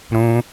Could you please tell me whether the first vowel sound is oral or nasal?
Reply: nasal